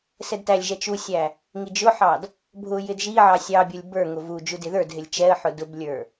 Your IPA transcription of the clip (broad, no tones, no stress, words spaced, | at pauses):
sɛdtælʲʒɛ t͡ʃusʲæ | ŋid͡ʒʊħɑd | bʱʊjɪd ʒiʕɑ sʲɑbʲə˞lʲ bə˞ ŋʊvud͡ʒu dɪðə˞dɦɪlʲ t͡ʃɛə̯ħʊ dʊblʲə˞